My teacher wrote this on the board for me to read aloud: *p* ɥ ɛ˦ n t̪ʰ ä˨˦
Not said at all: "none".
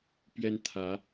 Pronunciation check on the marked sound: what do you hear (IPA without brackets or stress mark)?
p